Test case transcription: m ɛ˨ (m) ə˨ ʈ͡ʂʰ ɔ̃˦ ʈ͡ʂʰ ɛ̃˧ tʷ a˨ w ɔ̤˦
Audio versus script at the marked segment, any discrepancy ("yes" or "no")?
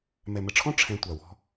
no